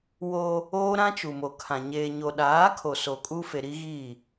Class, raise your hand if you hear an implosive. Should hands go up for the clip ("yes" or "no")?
yes